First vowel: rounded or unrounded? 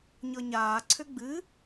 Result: unrounded